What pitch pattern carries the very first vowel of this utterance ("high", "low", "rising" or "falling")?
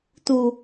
low